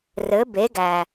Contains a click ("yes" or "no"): no